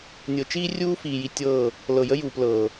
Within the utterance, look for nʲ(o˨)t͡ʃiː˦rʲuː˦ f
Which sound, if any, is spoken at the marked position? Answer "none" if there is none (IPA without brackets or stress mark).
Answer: ɤ˨